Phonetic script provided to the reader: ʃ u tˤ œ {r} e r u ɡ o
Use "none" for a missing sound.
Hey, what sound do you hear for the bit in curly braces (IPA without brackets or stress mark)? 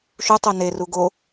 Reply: n